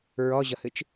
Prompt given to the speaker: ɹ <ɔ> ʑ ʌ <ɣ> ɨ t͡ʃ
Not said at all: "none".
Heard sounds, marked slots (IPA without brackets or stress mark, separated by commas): ɔ, h